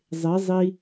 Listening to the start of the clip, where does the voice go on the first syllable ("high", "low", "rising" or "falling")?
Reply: rising